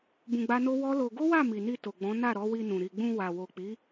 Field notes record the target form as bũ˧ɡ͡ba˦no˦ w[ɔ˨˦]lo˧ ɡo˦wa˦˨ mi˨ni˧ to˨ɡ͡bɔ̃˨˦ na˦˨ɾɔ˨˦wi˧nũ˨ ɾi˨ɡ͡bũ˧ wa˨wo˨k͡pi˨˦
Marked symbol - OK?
no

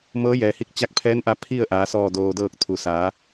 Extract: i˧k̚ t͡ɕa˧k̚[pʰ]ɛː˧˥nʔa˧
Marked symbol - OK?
yes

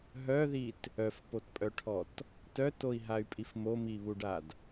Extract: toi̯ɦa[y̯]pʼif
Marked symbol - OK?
yes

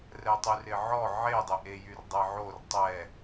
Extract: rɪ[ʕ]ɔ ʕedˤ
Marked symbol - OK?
yes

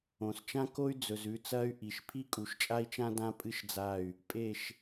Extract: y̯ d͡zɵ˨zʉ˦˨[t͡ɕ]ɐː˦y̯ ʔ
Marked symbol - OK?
no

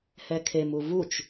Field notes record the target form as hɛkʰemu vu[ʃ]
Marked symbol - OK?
no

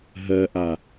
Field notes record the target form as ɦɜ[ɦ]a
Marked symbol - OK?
no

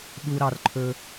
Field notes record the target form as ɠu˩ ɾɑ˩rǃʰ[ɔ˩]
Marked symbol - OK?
no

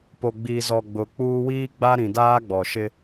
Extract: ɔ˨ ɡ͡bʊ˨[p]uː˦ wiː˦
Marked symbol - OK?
no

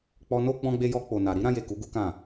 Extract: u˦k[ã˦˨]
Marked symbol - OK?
yes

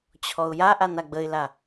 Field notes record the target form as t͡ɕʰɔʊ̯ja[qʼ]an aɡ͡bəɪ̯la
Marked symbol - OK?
no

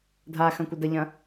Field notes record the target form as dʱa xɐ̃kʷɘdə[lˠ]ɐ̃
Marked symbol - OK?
no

